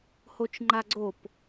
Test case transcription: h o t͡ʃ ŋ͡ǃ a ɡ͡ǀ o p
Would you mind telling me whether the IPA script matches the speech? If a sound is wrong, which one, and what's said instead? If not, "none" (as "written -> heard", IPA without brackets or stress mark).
none